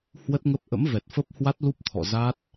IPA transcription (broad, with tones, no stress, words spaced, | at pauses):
hwə˦˥t̚ŋə˦˥p̚ ʔə̰˧˥mvɛ˨˩t̚fə˦˥p̚hwa˦˥t̚ lu˦˥p̚t̪ʰɔ̰˧˨za˦˥t̚